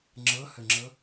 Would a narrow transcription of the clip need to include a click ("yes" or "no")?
yes